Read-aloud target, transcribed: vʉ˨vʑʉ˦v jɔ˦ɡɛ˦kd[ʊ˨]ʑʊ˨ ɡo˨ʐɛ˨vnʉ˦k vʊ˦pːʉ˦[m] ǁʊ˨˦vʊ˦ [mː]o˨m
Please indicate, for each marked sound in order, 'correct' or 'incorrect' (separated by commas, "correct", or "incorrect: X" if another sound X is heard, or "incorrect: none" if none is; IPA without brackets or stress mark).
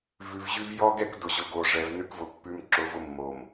correct, correct, correct